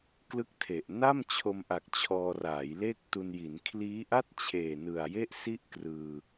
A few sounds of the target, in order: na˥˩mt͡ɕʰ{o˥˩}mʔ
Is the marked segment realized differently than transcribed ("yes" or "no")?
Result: yes